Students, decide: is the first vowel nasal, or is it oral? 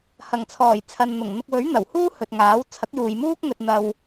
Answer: oral